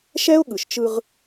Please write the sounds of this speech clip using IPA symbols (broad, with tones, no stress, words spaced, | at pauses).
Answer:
ʃɛ˦ʊ̯ɠɯ˨ʃ t͡ʃɯ˦ʁ